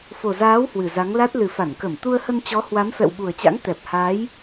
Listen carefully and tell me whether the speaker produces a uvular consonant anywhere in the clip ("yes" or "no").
no